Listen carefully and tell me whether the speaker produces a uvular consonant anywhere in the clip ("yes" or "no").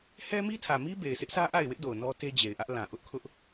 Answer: no